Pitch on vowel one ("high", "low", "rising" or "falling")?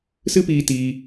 high